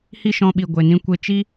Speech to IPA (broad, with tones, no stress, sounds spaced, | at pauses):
h i˦ ʃ ɔ̃˧ ɓ i˨ ɡʷ e˨ n ĩ˦ kʷ e˧ t͡ʃ i˦